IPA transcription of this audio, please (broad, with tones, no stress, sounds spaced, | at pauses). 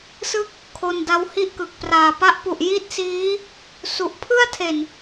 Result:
s ɯ˥˩ k̚ | kʰ o˧ n d a˦˥ w h i˥˩ ʔ k ɯ˨˩ k̚ p r aː˨˩ p a˦˥ ʔ p u˨˩ ʔ j i˥˩ t̚ s iː˦˥ | s u˨˩ ʔ pʰ ɯ˥˩ a̯ tʰ e˨˩ n